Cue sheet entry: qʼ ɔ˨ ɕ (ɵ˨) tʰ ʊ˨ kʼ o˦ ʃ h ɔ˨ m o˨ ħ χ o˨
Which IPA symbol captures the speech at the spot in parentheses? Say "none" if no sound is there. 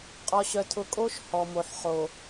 œ˨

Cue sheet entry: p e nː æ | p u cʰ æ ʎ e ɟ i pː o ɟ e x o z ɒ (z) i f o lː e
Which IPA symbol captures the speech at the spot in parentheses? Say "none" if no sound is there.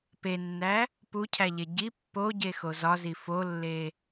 z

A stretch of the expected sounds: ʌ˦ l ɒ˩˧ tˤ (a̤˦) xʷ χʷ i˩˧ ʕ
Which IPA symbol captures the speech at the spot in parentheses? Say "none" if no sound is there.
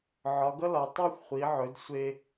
a˦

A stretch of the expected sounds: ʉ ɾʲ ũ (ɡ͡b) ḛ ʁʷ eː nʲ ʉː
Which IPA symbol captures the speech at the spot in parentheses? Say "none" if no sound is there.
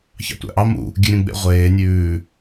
ɡ͡b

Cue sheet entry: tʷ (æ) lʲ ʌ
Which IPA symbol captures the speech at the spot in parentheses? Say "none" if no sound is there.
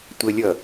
ə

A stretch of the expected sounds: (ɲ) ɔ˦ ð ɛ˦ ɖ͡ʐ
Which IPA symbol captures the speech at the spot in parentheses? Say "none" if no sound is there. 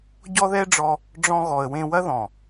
ɟ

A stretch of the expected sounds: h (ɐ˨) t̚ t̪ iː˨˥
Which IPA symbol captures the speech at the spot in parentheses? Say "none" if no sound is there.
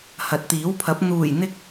ɐ˨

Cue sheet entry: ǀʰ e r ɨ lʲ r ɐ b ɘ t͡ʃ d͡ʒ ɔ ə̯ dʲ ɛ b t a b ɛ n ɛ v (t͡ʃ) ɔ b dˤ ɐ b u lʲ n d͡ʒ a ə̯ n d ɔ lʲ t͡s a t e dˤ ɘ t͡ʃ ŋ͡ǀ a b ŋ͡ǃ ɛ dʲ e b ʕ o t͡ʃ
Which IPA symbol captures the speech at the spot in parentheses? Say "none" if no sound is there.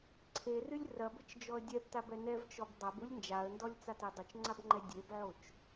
t͡ʃ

